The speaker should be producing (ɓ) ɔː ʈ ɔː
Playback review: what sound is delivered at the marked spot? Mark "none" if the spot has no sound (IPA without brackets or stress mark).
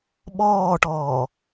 ɓ